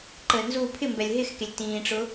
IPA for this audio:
ǃ əː n z uː pʰ ɪ m b ɛ lʲ ɦ ɪ x k e lʲ t ĩː ʈ͡ʂ ʊ

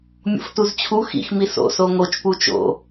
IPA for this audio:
mʲ o̰ f t u z t͡ɕʰ u x ḭ x m i s o̰ s o ŋ o t͡ʃ p u t͡ʃ o̰

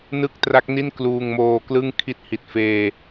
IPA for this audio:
n ɯ˥˩ k̚ t r a˦˥ k̚ n i˥˩ n k l uː˧ ŋ m oː˧ k l ɯ˥˩ ŋ kʰ i˥˩ t̚ h i˨˩ t̚ f eː˧

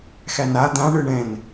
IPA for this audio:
x æ n a d̪ ã ɳ ɯ ɳ ɛ̃ n

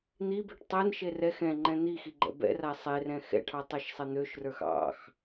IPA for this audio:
n̪ i b e ʈ tˤ ɛ n ʃ e r ɛ x ɛ̃ ŋ͡ǃ ɛ̃ n̪ i x i ɡ͡ǃ ɛ̰ b ɛ̰ r a sˤ e r ɛ̃ x ɛ̰ ʈʰ ɑ tˤ ɑ ʃ sˤ ɛ n̪ ø ʃ r ə˞ x ɑ̰ x

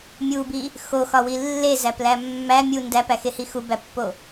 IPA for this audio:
mʲ u b i | x o x ɒ w i lː e z æ p l æ mː æ mʲ u n d æ p æ x e h i x u b æ pː o

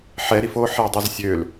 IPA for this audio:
ħ ɛ ɾ i f o ħ ɛ dˤ ø z sʲ ø l

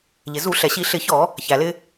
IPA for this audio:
ʎ ɪ˩ z u˧˩˧ ɬ ɛ˩ ɕ i˧˩˧ ɬ ɪ˧˩˧ ç ɔ˧˩˧ | ç æ˩ l ɪ˧

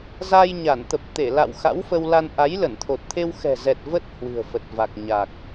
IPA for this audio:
z a˧ j ɲ a˧˩ n t̪ ə˨˩ p̚ t̪ e˧˩ l a̰˧˨ w x a̰˧˥ w f ə˧ w l a˧ n ʔ a˨˦ j l ə˧˩ n t̪ʰ o˨˩ t̚ t̪ʰ e˧ w x ɛ̤˨˩ z ɛ˨˩ t̚ v ə˦˥ t̚ h w ɨ̤˨˩ ə̯ f ə˨˩ t̚ v a˨˩ k̚ ɲ a˨˩ k̚

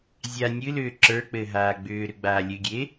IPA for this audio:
zʲ a nʲ ɨ l ʏː ǁ ə˞ k͡p ɘ ɦ aː ɡ͡b ʏː ɾ ʏ ɡ͡b aː lʲ ɨ ɡʲ e

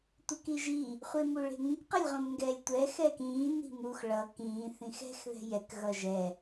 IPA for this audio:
tʷ e k i ʒ iː | χʷ e m u ɭ e̤ ŋ ĩ k q ʌ lʲ ʁ õ m ŋ ɡ ɛː lʲ tʷ ɛ x ɛː k ĩː n i̤ m u x ɭ ʌ k ĩː θ ĩ x ɛ̤ x ð ɛ̤ j ɛ k ɣ ʌ ʒ ɛ

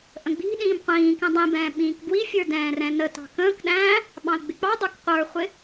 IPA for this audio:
ʔ ə̃ ɡ͡b i̤ ɗ ĩː m qʷ ĩː k ɛ̃ dˤ ĩ b ɛ̃ː ɓ ĩː k b w i fʲ ə˞ d ɛ̃ː r ɛ̃ n ə t ɑ̤ k ə̃ː k ɗ æ̃ː | ɓ ɑ̃ ə̯ ɡ͡b ɪ k͡p ɑ dˤ ə˞ k qʷ ə˞ χʷ ɪ

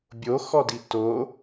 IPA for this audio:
bʲ o x ɔ d i t o

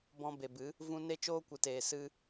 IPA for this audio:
b ɔ̃˧ b e˨ b ɨ˨˦ | v ũ˧ n e˦ t͡ʃ oː˦ kʷ ɨ˨ t eː˨ s ɨ˧

